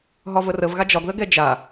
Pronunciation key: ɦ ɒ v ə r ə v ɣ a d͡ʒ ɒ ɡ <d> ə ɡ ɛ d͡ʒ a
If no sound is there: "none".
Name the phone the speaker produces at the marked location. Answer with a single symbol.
ð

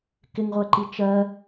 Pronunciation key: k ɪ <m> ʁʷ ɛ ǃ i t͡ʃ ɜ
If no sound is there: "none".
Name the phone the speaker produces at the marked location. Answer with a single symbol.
ŋ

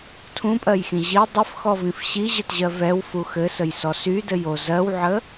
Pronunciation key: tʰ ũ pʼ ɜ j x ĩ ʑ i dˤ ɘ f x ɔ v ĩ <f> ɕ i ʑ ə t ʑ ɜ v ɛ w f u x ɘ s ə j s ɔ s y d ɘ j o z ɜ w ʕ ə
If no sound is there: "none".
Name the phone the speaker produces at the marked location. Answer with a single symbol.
f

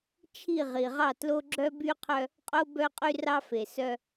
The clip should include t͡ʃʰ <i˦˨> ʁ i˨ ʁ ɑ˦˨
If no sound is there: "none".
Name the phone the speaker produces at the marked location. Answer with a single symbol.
i˦˨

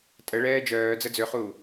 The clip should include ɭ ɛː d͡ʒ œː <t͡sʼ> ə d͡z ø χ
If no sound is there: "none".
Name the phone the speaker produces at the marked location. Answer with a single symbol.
d͡z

